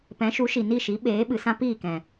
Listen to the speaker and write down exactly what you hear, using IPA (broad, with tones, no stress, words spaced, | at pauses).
pɛ̃˨˦ʃu˨˦ʃi˨ ni˦˨ʃi˨˦ ɓeː˨˦ɓɨ˨sã˦ piː˦˨kɛ̃˨